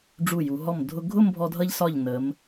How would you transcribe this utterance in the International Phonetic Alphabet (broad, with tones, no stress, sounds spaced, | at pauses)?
ɖ͡ʐ u˧˩ j u˩˧ ɦ ɔ˧˩ m dʱ ʊ˧ ɡʱ ʊ˥˧ m bʱ ɔ˧ dʱ ʌ˧ ʎ s ɒ˧˩ ʎ n ə˩˧ m